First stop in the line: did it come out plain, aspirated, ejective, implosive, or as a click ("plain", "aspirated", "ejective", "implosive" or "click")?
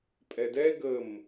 ejective